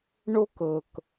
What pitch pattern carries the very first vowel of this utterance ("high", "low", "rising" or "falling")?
high